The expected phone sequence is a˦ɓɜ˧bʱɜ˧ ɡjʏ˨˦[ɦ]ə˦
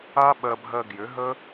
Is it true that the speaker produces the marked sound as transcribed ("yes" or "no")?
yes